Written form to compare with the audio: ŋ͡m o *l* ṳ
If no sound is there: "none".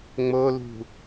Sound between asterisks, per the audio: l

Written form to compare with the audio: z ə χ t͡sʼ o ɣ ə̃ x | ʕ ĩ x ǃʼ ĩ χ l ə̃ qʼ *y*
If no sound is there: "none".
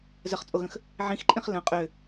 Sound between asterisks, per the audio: ø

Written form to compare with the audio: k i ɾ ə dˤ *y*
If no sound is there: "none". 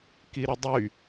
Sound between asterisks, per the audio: y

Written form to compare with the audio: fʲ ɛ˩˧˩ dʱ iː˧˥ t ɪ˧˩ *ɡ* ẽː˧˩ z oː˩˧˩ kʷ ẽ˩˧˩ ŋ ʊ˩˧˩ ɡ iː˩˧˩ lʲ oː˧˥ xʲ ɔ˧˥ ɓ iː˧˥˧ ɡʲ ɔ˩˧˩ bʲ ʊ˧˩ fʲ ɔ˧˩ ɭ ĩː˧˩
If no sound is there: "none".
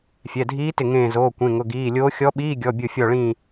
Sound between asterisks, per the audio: ŋ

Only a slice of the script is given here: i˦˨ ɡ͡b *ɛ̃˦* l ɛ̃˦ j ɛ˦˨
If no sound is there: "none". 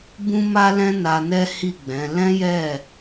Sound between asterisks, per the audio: ɛ̃˨˦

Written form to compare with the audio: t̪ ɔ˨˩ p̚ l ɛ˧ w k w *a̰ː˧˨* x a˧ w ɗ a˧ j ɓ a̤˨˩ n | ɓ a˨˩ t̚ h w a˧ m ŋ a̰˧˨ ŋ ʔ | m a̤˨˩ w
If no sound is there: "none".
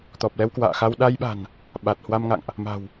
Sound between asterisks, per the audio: a̰ː˧˨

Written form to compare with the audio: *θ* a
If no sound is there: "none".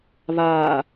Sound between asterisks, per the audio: β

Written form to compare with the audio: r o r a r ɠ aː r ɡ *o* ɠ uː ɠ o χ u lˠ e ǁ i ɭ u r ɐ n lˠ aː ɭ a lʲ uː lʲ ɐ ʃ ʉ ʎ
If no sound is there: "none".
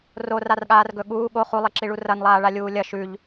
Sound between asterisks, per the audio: ɵ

